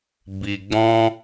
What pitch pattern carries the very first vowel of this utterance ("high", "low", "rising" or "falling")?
low